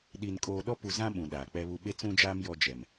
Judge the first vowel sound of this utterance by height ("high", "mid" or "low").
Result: high